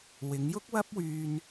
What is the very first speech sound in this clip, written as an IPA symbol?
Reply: w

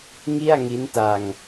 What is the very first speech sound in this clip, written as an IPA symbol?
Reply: ŋ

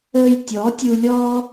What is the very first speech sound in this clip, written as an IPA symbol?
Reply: əː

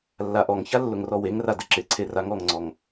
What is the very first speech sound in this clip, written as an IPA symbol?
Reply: lː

